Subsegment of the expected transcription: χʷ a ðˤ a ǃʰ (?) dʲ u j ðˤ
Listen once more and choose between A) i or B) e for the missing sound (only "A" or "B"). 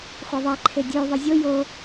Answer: B